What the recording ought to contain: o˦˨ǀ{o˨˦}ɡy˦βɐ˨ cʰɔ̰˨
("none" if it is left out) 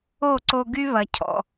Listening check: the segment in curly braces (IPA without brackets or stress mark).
o˧